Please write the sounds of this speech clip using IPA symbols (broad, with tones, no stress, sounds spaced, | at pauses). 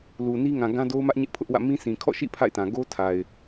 l u˨ n i˦ ŋ ã˨ ɡ ã˦ d o˦ ʊ̯ m ä˦ ʔ ɲ ɪ˦ ʔ pʰ ʊ˦ ʔ w ä̰˦˨ m ĩ˦ sʰ ĩ˨ kʰ ɔ̰˦˨ ʃ ḭ˦˨ pʰ a̰˦˨ ɪ̯ t ã˨ ɡ o˦ tʰ a˨ ɪ̯